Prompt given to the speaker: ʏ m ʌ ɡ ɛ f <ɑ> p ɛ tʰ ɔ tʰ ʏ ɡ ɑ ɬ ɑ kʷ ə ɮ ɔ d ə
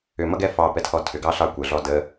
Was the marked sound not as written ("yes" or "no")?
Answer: no